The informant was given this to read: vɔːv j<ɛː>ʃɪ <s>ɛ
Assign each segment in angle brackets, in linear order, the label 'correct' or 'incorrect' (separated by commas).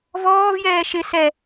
correct, correct